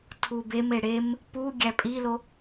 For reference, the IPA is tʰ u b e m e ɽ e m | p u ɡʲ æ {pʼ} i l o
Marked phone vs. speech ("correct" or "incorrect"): correct